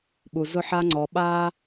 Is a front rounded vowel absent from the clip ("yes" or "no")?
yes